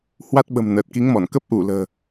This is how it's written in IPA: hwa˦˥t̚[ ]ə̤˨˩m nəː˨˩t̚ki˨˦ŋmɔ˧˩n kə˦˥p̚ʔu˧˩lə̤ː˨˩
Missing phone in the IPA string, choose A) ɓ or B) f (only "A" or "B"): A